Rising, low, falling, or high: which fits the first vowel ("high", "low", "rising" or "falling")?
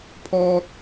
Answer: high